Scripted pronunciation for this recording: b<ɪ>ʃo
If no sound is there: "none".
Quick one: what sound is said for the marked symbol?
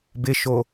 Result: ɪ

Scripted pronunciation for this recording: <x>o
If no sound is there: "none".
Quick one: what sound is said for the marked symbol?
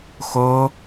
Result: x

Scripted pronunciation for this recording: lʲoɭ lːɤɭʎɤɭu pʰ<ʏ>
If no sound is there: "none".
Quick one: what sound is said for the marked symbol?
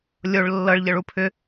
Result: ʏ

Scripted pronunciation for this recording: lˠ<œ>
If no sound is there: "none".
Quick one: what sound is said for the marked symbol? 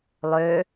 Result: ø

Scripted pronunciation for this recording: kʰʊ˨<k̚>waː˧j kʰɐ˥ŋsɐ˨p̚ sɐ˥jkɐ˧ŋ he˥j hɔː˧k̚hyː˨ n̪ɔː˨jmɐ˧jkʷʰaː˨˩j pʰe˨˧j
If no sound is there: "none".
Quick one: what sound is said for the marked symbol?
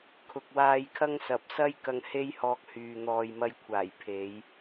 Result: k̚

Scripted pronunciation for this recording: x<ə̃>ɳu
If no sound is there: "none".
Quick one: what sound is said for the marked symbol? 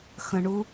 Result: ə̃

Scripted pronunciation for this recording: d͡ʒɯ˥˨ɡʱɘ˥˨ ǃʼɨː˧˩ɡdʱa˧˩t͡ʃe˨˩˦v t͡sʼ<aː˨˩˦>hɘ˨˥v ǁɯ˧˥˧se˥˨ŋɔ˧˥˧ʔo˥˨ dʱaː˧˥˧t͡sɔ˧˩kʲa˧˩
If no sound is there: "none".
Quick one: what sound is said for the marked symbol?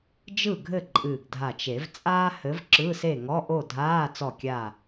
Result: aː˥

